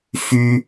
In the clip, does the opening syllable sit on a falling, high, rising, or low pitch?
high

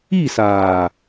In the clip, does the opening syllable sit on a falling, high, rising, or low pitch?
falling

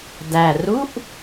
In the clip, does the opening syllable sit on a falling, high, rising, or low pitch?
low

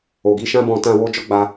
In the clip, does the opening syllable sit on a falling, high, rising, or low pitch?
low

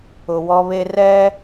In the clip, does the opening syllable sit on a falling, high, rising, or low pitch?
low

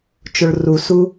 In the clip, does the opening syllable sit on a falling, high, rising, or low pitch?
low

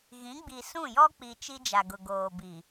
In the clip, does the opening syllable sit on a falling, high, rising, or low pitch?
rising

